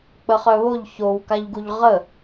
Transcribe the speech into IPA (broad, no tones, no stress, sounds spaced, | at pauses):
k͡p ə χ œ β o ʎ ç o w k a ʎ ɡ u ʎ ʁ ə